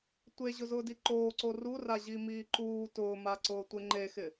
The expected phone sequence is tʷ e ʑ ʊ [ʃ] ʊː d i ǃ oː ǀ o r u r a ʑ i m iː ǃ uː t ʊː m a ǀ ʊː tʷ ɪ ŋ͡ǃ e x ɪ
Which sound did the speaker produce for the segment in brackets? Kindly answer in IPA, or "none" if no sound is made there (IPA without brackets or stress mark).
z